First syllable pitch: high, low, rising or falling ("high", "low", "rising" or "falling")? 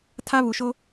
high